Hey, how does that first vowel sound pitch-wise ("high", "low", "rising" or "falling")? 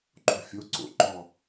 falling